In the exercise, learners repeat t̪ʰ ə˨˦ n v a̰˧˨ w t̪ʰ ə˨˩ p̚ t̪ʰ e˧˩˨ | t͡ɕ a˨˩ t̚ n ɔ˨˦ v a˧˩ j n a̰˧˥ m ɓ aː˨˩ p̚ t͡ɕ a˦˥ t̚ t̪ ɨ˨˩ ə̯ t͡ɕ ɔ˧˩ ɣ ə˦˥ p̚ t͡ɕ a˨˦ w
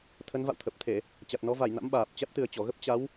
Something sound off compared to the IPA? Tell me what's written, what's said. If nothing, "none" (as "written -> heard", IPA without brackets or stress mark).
none